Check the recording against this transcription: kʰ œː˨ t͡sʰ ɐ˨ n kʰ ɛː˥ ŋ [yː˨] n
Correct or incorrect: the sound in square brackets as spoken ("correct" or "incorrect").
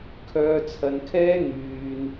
correct